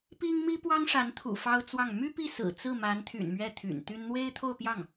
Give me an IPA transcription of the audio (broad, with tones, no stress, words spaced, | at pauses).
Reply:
pi˥ŋ mi˥pwɑ˥ŋʂa˧˥nt̪ʰṵ˨˩ fɑ˥ʊ̯t͡swɑ˥˩ŋ my˥pi˥˩sɹ̩˨˩ t͡sɹ̩˥˩ma˧˥nt̪ʰy̰˨˩n mɥɛ˥˩t̪ʰy̰˨˩nt̪y˥n n̪we˥ɪ̯t̪ʰo˥˧ʊ̯pjɑ˥˩ŋ